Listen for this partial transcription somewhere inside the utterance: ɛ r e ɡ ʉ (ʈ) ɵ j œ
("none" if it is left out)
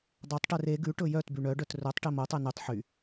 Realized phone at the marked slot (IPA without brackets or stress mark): ʈ